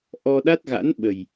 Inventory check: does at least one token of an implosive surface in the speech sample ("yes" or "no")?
yes